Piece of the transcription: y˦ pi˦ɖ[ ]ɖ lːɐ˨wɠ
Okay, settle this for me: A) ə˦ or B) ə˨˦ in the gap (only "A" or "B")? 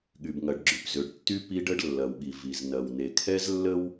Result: A